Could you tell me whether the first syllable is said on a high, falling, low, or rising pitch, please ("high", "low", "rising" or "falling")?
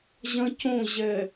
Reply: high